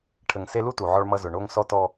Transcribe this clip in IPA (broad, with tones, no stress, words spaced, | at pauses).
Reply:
ʈʰə˨ŋse˦lu˥ tu˩ʕɔ˦ɭmʌ˦ zʊ˨ɳo˥ŋ sɔ˥tɔ˦